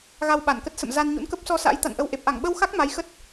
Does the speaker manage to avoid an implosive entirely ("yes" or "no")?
no